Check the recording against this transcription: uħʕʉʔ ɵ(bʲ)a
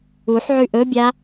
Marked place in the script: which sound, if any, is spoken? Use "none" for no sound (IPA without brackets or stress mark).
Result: bʲ